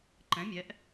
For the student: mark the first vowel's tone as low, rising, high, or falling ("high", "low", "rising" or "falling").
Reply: rising